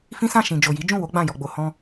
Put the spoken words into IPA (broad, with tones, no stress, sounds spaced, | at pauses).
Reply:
f ĩ˦ s ã˦˨ ʃ ĩ˨ d͡ʒ o˨ j i˨˦ d͡ʒ ũ˦˨ w o˨˦ ɡ͡b ã˦˨ j ɔ˨ ɡ͡b o˨ h ɔ̃˧